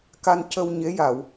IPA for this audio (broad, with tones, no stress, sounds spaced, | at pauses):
k a˧ n c ə˧ w ɲ e˧˥ j a˨˩˨ w